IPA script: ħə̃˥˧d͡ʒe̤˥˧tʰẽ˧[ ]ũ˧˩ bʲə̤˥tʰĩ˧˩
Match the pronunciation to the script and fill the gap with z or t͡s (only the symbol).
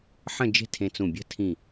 t͡s